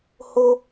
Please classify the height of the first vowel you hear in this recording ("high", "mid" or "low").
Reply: mid